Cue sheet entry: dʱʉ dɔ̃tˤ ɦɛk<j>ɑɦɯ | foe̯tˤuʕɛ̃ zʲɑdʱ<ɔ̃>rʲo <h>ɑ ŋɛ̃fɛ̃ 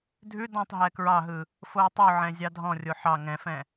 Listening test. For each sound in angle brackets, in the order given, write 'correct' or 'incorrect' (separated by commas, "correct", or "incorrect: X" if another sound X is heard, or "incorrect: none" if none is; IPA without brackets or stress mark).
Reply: incorrect: ɹ, correct, incorrect: ħ